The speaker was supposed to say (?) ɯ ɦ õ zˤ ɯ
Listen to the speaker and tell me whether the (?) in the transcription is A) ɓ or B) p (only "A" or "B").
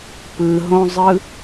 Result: B